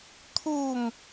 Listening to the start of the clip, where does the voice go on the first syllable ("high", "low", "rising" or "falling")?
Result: falling